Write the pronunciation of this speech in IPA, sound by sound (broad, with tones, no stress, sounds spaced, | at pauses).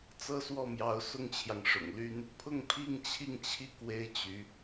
t͡s ɤ˥ s w ɔ˥˩ m j ɑ˧˥ ʊ̯ s ʊ˥ ŋ t͡ɕʰ j ɑ˨ ŋ ʂ ʊ̰˨˩ ŋ l y˥ n | pʰ ʊ˥˧ ŋ pʰ i˥˧ ŋ t͡ɕʰ i˥˧ ŋ t͡ɕʰ i˥˩ k w e˥ ɪ̯ t͡ɕ y˧˥